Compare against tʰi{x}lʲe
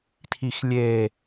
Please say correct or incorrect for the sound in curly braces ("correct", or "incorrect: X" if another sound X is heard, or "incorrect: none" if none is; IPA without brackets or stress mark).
correct